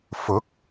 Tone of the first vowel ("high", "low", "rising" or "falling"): rising